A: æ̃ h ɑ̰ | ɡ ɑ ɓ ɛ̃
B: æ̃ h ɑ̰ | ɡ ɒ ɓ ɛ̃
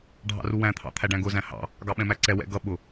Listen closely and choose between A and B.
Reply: A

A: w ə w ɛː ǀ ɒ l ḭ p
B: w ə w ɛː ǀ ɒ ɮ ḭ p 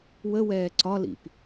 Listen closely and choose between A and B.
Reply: A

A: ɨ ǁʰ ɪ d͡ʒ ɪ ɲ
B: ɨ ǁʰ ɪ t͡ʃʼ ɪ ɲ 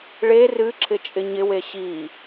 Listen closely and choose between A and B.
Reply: B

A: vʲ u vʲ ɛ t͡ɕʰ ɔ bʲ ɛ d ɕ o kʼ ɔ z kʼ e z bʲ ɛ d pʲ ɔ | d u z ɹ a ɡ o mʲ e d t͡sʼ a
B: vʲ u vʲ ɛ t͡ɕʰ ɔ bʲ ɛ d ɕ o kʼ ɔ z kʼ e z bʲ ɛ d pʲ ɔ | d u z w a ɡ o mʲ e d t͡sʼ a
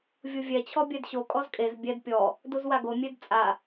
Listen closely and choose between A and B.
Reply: B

